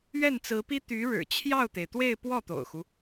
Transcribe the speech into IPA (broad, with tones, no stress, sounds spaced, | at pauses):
ɥ ɛ˥˩ n t͡s ɹ̩˧˥ p i˥ t̪ y˧˥ ɻ ɻ̩˨˩ t͡ɕʰ j ɑ˥˩ ʊ̯ t̪ e˩ ɪ̯ t̪ w e˥˧ ɪ̯ p w ɔ˥˩ t̪ o̰˨˩ ʊ̯ x u˦